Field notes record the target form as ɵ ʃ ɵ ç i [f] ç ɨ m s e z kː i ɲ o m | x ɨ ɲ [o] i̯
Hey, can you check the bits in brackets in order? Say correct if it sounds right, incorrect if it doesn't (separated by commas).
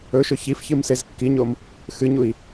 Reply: correct, incorrect